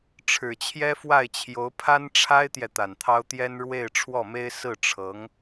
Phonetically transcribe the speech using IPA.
ʈ͡ʂʰ ɻ̩˨˩ t͡ɕʰ j ɛ˥ f w a˥˩ ɪ̯ t͡ɕʰ j o˧˥ ʊ̯ pʰ a˥ n ʈ͡ʂʰ a˥ ɪ̯ t̪ j ɛ˨ t̪ a˨˩ n t̪ʰ ɑ˥ ʊ̯ t̪ j ɛ˥ n ɻ w e˥˧ ɪ̯ ʈ͡ʂʰ w ɔ˥˩ m e˥ ɪ̯ s ɹ̩˥˩ ʈ͡ʂʰ ɤ˧˥ ŋ

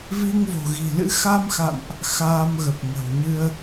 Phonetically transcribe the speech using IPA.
v i˧ ŋ v o̤˨˩ ɣ i̤˨˩ l ɨ̰˧˥ x a˧ m x a̰˧˨ n ʔ | x aː˧ m ɣ ə˨˩ p̚ ŋ ə̤˨˩ w ɲ ɨ˧ ə̯

